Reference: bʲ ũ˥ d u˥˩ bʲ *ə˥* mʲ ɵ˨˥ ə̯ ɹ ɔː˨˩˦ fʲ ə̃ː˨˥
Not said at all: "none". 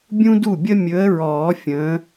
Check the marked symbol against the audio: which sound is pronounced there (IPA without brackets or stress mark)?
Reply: ə˥